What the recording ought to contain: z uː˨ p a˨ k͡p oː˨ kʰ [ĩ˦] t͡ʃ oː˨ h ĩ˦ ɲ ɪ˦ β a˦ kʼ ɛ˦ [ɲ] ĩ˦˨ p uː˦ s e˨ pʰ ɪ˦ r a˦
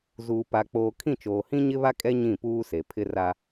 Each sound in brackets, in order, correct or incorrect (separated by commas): incorrect, correct